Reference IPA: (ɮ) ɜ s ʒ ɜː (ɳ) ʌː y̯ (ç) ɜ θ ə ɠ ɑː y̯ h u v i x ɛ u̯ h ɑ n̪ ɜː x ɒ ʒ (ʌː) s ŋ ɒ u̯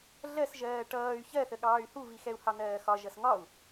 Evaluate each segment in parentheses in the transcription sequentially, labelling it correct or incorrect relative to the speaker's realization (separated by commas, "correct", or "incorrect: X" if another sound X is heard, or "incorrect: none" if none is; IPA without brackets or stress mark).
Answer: correct, incorrect: ʈ, correct, incorrect: ʌ